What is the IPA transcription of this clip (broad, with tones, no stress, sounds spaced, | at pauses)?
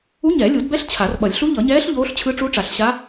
u˧˥ ɲ ɛ˨˩˦ lʲ u˨˩˦ d b ɛ˧˥ ɬ t͡ɕʰ a˨˩˦ r ɓ ʌ˨˩˦ lʲ ɬ u˧˥ ʎ ʌ˨˩˦ ɲ ɛː˧˥ ɬ ʎ oː˧˥ ɬ t͡ɕʰ ɯ˧˥ ʈ͡ʂ u˧˥ ʈ͡ʂ a˨˩˦ ɬ ɕ a˧˥